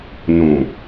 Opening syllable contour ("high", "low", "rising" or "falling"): low